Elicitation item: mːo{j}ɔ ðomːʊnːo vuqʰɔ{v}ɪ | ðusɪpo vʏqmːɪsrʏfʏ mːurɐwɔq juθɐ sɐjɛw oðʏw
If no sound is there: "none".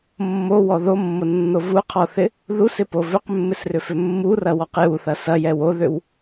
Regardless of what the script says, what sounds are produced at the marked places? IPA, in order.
w, θ

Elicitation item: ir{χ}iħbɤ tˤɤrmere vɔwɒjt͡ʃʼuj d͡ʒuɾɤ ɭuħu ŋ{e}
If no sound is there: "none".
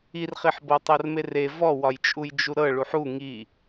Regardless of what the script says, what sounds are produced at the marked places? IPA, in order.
χ, i

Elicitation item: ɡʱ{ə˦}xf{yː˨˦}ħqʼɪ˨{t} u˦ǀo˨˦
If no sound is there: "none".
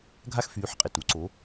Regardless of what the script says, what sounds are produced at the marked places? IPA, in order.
a˦, yː˨˦, t

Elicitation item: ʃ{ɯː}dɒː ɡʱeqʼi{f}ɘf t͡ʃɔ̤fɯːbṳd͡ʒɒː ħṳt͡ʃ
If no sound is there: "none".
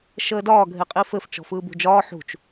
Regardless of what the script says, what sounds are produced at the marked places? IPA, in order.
əː, f

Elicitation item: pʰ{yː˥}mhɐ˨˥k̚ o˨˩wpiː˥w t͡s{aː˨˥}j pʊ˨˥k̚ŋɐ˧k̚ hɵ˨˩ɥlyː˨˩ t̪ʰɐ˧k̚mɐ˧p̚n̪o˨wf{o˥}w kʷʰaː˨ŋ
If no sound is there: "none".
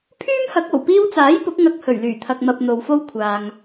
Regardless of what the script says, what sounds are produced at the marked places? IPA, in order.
yː˥, aː˨˥, o˥

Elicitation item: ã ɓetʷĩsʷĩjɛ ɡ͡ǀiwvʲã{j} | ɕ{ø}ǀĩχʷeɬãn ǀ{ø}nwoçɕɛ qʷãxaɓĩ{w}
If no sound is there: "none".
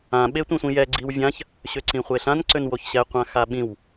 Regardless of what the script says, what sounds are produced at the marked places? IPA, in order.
ç, ø, ø, w

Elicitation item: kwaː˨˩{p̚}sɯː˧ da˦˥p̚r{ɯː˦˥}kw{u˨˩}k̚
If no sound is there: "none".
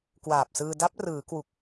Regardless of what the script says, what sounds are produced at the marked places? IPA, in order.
p̚, ɯː˩˦, u˨˩

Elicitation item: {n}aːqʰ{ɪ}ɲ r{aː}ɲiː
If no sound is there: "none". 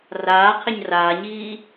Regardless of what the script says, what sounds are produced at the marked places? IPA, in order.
r, ɪ, aː

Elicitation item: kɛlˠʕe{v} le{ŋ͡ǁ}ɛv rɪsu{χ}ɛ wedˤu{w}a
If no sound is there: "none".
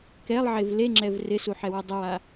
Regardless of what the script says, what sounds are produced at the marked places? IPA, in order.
v, ŋ͡ǁ, ħ, w

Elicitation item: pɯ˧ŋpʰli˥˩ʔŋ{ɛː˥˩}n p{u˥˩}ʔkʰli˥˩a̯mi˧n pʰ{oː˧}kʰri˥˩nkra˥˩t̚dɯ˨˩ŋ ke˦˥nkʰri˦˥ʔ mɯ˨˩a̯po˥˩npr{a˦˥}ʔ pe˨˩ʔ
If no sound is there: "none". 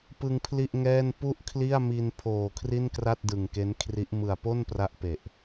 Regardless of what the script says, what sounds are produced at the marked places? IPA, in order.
ɛː˥˩, u˥˩, oː˨˩, a˦˥

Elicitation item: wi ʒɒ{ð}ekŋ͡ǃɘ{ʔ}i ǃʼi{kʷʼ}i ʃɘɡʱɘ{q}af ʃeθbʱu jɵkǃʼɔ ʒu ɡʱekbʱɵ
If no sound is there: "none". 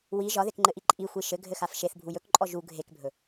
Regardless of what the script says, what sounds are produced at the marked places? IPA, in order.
ð, ʔ, xʷ, x

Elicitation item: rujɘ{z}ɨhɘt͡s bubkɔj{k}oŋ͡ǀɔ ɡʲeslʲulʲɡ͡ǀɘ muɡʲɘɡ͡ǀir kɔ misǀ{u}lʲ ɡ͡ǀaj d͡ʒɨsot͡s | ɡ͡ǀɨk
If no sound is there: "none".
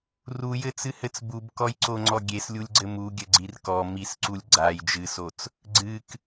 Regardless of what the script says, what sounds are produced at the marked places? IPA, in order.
t͡s, ǀ, u

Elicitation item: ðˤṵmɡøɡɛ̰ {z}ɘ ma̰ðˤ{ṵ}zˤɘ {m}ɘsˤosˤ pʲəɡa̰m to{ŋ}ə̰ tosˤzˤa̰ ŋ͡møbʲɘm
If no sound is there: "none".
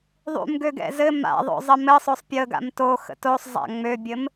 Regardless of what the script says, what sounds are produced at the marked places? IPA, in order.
z, o̰, m, x

